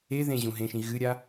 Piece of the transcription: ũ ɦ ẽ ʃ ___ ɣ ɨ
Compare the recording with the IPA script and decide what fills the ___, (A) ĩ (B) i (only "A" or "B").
A